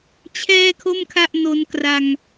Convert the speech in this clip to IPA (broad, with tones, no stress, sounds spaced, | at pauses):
t͡ɕʰ ɛː˥˩ kʰ o˥˩ m kʰ a˥˩ ʔ n o˧ n k r a˧ ŋ